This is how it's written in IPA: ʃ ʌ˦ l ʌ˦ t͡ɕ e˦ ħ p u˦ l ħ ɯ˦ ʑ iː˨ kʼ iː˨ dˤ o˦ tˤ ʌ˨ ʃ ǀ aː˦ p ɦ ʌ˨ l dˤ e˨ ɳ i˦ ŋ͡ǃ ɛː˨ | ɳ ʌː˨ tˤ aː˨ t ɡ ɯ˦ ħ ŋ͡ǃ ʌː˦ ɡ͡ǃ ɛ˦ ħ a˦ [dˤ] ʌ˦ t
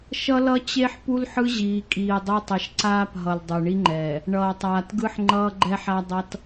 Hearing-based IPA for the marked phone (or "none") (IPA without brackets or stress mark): dˤ